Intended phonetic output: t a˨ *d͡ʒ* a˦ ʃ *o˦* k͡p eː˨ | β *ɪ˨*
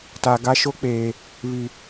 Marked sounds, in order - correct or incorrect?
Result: incorrect: ɡ, correct, incorrect: i˨

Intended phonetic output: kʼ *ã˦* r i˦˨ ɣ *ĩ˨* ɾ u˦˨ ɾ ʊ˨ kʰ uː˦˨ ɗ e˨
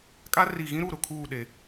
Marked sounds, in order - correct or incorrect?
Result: incorrect: a˦, incorrect: ĩ˦

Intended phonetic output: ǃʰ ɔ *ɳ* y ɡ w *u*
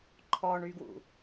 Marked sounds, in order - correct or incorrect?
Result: correct, incorrect: ṵ

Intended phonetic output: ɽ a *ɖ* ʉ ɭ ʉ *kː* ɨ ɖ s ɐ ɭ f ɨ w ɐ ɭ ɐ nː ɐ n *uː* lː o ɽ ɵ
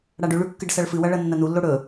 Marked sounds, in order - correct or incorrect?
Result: correct, correct, incorrect: u

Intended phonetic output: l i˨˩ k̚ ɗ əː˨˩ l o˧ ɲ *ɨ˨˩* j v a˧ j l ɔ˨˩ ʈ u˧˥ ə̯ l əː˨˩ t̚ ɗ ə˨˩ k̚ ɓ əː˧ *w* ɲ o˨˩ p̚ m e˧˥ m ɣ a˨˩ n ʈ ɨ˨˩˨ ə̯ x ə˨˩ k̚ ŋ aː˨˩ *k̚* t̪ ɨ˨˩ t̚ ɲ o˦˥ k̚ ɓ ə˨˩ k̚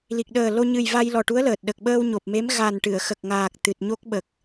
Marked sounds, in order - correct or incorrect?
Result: correct, correct, correct

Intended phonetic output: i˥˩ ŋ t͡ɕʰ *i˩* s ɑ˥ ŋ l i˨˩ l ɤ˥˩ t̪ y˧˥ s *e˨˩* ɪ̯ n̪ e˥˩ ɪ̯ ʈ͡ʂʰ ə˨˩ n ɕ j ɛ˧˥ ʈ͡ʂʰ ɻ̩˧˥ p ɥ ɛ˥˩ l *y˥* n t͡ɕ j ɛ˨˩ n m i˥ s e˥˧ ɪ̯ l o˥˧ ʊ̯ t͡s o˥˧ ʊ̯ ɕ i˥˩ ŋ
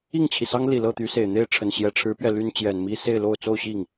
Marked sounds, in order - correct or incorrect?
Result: correct, correct, correct

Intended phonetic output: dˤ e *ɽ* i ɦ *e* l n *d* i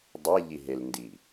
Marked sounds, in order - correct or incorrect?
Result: incorrect: ʎ, correct, correct

